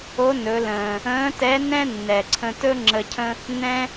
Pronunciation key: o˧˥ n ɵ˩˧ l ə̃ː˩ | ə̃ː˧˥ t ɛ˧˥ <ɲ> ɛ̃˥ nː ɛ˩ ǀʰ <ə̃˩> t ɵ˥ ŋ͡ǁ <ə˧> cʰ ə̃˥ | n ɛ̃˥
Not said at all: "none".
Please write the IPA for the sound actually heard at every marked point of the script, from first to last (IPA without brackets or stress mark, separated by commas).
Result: n, ə̃˧, ə˧